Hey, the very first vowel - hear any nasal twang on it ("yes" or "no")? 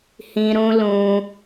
yes